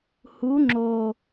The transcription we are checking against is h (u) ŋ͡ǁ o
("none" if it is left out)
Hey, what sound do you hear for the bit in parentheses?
u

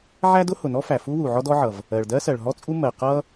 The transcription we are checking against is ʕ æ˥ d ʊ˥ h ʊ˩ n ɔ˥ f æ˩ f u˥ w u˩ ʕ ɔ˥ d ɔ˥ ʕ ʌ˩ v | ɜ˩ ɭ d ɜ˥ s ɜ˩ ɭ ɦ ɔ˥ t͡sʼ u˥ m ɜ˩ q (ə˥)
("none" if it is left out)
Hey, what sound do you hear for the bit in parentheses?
ʌ˥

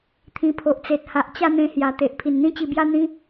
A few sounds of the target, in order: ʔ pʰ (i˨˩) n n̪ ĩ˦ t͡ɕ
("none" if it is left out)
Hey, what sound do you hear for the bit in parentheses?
i˨˩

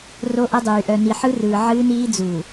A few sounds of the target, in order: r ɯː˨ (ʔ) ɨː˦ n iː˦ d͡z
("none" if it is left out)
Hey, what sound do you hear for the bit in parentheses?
ʕ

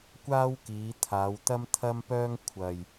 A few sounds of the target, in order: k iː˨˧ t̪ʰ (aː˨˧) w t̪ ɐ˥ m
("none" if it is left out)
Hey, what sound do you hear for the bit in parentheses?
aː˨˧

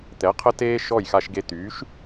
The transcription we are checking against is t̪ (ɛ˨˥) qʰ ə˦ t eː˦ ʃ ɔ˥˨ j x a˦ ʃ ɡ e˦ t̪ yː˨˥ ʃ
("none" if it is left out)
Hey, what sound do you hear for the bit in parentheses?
ɛ˨˥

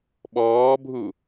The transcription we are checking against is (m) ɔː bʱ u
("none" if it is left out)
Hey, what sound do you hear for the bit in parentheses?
ɓ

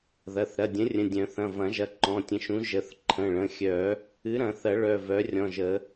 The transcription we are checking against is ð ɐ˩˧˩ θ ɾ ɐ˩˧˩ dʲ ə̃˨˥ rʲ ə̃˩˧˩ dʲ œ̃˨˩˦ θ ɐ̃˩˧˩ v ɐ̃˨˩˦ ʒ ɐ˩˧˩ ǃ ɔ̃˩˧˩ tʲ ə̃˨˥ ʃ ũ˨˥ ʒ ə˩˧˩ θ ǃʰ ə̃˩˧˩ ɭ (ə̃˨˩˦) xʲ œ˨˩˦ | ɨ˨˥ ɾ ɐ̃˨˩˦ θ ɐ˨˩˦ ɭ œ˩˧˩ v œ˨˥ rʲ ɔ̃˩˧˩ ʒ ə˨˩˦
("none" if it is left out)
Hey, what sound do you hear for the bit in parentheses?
ə̃˩˧˩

